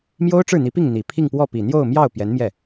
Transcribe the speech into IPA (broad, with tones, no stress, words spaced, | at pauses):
mjo˥ʊ̯ʈ͡ʂɻ̩˥˩n̪i˧˥pi˥˩ŋ n̪i˨˩ pʰi˥˧ŋpwɔ˥˩pi˨˩ n̪jo˥˧ʊ̯mjɑ˥˩ʊ̯ pjɛ˧˥nmjɛ˥˩